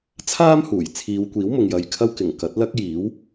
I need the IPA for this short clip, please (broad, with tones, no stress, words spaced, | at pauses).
t͡sʰaː˥mhuː˨˩j t͡sʰiː˨˧wkʷiː˨˥wmʊ˨ŋ jɐ˧jkʰɐ˥w kɪ˨˩ŋkɐ˨˥t̚lɐ˥k̚ jiː˨˥w